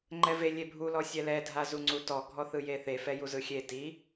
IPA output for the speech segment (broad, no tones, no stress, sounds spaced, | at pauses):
ŋ͡ǃ ɛ v e lʲ e bʱ u l ɔ sʲ ɛ l ɛ dʱ a z u ŋ͡ǀ u t ɔ ɡʱ ɔ θ ɯ j e θ e f ɛ j u z ɯ xʲ e t i